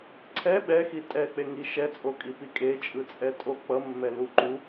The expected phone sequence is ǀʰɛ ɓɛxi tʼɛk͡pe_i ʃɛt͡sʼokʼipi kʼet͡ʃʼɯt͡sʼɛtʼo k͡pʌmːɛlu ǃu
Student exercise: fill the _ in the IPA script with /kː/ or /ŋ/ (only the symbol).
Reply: ŋ